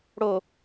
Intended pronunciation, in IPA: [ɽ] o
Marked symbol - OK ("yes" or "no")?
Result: yes